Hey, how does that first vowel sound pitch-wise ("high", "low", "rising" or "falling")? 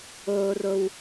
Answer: low